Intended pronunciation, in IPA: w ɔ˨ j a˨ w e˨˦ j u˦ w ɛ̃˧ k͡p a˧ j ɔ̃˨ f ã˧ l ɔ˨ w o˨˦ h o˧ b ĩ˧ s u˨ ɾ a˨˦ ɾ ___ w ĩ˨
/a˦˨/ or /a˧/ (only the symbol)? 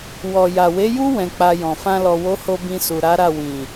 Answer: a˦˨